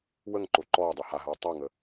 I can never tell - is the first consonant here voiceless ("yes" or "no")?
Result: no